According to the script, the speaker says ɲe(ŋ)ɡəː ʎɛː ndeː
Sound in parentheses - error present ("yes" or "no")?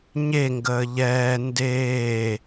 no